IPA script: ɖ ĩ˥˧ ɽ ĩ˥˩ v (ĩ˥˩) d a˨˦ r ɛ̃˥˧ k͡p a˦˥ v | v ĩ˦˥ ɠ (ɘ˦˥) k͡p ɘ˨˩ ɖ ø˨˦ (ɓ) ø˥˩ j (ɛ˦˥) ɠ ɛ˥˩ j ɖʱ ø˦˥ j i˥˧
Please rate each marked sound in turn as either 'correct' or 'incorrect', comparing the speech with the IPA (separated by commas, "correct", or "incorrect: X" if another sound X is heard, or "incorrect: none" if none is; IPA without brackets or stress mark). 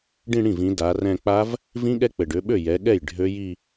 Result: incorrect: ĩ˨˦, incorrect: ɛ˦˥, correct, incorrect: ɛ˨˦